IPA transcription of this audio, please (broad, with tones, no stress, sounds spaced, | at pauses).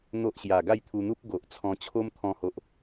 n̪ o˦ ʔ ɕ j a˨˩ ɡ a˥˧ j t̪ʰ u˧ n̪ u˦ p̚ ɡ o˨ ʔ t͡sʰ ɔ̃˧ t͡ɕʰ o˦ m t̪ʰ ɔ̃˧ h o˨ ʔ